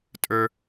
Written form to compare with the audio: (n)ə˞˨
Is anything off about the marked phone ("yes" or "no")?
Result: yes